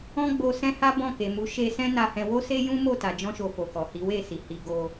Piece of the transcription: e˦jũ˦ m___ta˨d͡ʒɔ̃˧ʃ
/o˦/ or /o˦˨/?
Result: o˦˨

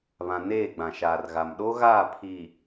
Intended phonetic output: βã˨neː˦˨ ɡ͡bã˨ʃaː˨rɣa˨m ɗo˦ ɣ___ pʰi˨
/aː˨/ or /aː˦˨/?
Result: aː˦˨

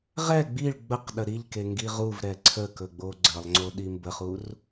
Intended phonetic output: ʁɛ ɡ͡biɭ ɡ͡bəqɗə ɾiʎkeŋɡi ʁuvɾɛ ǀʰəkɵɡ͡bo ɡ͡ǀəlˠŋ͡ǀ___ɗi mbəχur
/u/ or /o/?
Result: o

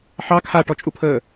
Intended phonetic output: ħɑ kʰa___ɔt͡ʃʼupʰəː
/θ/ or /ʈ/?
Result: ʈ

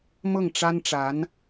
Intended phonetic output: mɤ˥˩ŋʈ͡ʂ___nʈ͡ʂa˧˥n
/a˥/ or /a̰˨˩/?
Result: a˥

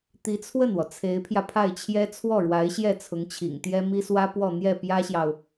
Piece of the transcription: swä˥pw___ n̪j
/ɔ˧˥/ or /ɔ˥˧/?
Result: ɔ˥˧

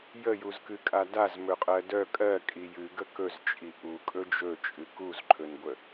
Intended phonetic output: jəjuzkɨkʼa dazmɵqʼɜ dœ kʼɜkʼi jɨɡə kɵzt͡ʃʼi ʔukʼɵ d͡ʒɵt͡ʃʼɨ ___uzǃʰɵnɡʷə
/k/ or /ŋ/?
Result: k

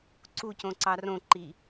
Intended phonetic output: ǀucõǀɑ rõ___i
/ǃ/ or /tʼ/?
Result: ǃ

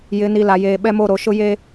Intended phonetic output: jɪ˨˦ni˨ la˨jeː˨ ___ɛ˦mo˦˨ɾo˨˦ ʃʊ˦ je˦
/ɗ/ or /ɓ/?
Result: ɓ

